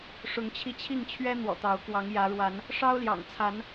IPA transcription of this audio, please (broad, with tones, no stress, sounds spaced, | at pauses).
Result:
ʂ ʊ˨˦ ŋ t͡ɕʰ i˧ t͡ɕʰ i˥˨ ŋ t͡ɕʰ ɥ ɛ˦ n̪ w ɔ̰˨˩ t̪ ɑ˨˦ ʊ̯ k w ɑ˨˦ ŋ j ä˨˦ ɻ w a˨˦ n | ʂ ɑ˦ ʊ̯ l j ɑ̰˨˩ ŋ t͡sʰ a˨˦ n